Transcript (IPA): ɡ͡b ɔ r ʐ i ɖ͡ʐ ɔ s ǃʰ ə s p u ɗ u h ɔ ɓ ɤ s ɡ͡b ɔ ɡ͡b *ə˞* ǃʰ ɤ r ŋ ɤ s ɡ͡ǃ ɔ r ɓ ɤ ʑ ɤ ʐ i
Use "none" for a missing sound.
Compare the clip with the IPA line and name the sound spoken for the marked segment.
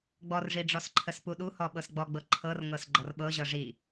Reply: ɤ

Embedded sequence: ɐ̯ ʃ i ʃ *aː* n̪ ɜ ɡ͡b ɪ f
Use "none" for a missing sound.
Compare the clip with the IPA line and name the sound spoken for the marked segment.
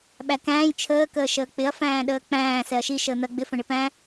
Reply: əː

